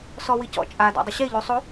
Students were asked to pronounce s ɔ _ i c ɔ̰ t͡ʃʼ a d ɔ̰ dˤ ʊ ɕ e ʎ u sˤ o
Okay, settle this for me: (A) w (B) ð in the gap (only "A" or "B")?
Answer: A